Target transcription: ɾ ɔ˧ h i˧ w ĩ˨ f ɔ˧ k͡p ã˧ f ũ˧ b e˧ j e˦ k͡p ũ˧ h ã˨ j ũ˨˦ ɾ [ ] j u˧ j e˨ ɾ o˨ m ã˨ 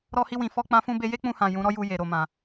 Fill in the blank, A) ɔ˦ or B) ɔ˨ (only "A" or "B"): A